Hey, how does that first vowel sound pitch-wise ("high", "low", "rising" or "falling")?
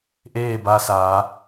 falling